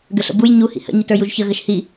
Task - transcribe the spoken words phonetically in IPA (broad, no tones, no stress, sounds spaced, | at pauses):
ɡ ə ɬ ə̰ b u j ɲ u h ḭ h ə̰ ɲ i t ə˞ j u ʒ ç ə ɣ ə ʃ h i